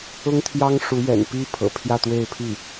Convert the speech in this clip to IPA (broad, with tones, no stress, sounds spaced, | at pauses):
ʊ˥ ŋ t̪ʰ j ɑ˥ ŋ ʂ u˧˥ ɥ ɛ̰˨˩ n p i˥ pʰ ɤ̰˨˩ pʰ j ä˥˧ t̪ w e˥˧ ɪ̯ pʰ i˥˩